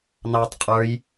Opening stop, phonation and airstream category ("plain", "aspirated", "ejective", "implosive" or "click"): plain